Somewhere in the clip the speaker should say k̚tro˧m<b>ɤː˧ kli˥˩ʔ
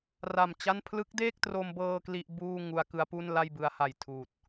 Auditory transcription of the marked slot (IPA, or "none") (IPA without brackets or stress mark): b